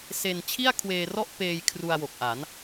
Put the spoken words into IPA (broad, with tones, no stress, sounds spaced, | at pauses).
s e˧ n t͡ɕʰ i˥˩ a̯ kʰ w eː˧ r ɔ˥˩ ʔ p eː˧ j kʰ r u˧ a̯ w o˨˩ k̚ ʔ a˩˦ n